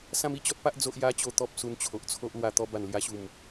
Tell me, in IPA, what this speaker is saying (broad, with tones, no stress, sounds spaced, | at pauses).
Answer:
s ã˦ m i˧ t͡ɕ ɔ˦ t̚ p a˦ ʔ d͡z o˦ ʔ j a˦ t͡ɕ o˦ t̪ ɔ˦ p̚ s u˧ n t͡ɕʰ o˨ ʔ t͡sʰ o˦ ʔ l w a˧ t̪ ɔ˧ b a˨˩ n l j a˧ ɕ u˨˩ m